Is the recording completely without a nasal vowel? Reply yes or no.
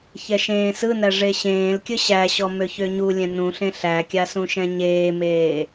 no